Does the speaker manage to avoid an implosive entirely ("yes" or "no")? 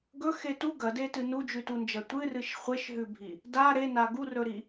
yes